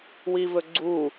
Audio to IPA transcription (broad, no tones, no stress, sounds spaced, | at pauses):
w i v ɵ ɡ͡ǀ u